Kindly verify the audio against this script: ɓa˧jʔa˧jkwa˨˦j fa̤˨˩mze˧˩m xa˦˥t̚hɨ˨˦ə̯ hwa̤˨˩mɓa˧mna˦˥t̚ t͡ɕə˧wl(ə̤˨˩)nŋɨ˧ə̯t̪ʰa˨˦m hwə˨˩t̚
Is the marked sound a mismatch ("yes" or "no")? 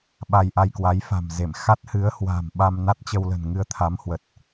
no